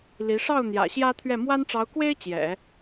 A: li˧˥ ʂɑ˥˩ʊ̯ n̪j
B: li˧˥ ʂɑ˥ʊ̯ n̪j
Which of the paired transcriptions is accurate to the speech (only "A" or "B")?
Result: A